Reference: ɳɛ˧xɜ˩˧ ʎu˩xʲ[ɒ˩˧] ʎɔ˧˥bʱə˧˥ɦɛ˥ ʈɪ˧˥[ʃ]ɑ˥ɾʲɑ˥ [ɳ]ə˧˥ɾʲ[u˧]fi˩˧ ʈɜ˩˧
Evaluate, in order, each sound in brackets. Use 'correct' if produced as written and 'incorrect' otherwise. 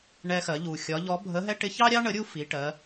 correct, incorrect, correct, incorrect

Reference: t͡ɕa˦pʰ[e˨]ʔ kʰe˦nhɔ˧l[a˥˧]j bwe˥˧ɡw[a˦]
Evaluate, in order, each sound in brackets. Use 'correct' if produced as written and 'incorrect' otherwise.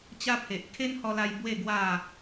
correct, incorrect, incorrect

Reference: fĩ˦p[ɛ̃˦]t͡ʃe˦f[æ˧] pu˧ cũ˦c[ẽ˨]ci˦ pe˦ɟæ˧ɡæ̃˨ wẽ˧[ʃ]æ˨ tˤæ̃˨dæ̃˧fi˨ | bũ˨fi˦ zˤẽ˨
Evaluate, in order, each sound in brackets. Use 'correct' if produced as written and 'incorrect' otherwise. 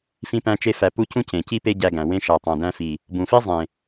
incorrect, correct, correct, correct

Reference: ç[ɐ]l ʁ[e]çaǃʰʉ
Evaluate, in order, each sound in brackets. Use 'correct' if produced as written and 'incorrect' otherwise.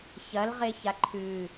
correct, correct

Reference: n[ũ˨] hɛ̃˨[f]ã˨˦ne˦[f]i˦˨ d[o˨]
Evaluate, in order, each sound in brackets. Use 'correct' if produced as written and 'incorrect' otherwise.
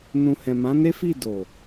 correct, incorrect, correct, correct

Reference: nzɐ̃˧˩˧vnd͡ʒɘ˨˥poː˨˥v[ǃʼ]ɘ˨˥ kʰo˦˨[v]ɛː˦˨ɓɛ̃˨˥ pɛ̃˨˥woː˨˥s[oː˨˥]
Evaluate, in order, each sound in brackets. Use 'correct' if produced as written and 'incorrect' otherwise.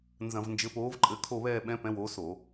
correct, incorrect, incorrect

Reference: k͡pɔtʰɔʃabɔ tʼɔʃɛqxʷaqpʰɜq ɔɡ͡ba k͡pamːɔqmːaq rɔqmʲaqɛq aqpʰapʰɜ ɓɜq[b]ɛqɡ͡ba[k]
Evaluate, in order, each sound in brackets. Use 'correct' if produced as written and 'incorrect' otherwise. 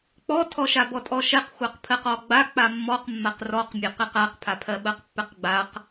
incorrect, incorrect

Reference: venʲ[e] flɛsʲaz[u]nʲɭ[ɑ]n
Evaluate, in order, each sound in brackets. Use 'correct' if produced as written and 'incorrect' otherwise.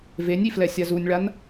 incorrect, correct, incorrect

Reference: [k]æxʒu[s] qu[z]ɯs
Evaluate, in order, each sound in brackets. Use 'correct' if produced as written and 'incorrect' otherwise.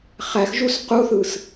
incorrect, correct, incorrect

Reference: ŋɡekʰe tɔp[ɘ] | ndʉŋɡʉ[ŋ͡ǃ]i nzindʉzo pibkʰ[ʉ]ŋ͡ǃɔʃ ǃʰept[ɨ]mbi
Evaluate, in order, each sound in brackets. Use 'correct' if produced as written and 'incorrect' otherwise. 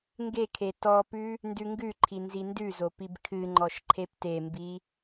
incorrect, incorrect, incorrect, incorrect

